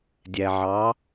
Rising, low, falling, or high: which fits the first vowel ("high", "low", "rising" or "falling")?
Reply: low